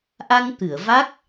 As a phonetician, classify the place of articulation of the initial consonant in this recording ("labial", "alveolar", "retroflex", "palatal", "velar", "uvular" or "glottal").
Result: glottal